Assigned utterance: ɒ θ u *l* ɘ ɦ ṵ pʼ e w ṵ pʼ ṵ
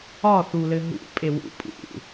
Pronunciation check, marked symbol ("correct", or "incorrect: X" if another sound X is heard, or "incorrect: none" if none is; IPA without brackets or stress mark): correct